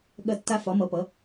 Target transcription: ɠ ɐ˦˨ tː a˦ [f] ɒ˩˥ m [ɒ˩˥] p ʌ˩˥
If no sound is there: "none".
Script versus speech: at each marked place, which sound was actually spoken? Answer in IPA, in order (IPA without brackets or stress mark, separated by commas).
f, ʌ˩˥